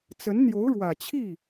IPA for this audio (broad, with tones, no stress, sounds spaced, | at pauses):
t͡s ə˧˥ n n̪ j o˧˥ ʊ̯ ɻ w ä˨˩ t͡ɕʰ i˥˩